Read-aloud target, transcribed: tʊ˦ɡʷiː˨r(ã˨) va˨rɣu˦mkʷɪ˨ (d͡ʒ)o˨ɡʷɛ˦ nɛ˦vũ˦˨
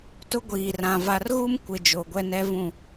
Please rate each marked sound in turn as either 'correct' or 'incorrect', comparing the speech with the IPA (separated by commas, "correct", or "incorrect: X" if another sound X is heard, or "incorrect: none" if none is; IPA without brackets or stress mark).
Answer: correct, correct